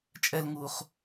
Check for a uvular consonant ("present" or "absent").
present